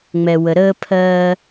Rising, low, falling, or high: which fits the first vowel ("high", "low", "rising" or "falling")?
low